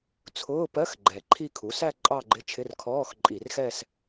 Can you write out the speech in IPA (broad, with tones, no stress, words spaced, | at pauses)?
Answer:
t͡sʰʊː˧˥˧pɜ˧˥˧x ɡ͡ǃɛ˨˩ǃʰi˥˧ kʰu˩˥sæ˥˧ ǃʼɑ˥˧ɡ͡ǃɪ˧˥˧t͡ʃʰɪ˧˥˧r kʰɔː˧˥˧xǃʼi˧˩˧rxɛ˥˧s